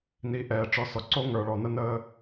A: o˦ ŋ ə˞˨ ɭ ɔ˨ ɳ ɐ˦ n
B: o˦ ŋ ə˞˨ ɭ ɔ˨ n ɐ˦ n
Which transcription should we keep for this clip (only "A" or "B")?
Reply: B